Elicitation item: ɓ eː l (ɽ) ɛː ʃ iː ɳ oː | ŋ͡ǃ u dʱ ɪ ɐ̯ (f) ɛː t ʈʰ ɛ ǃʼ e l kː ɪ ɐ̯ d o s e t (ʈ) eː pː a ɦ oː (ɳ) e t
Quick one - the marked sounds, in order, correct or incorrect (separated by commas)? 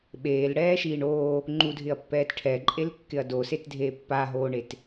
correct, incorrect, incorrect, correct